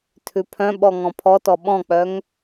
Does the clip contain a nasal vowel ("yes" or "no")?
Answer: yes